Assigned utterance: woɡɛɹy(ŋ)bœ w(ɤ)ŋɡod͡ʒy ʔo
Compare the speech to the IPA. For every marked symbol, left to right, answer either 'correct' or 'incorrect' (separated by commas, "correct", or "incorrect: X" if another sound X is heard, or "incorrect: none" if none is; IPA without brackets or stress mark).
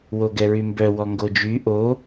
incorrect: m, incorrect: ɔ